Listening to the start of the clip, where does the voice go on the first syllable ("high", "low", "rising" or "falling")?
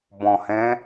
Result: low